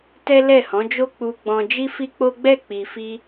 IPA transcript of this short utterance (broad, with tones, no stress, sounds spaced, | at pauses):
t ɛ˦ l ɛ˦˨ h ɔ̃˨˦ d͡ʒ o˦ k͡p u˧ ɡ͡b ɔ̃˧ d͡ʒ i˦ f i˦ k͡p o˦ ɡ͡b ɛ˦˨ k͡p i˨ f i˧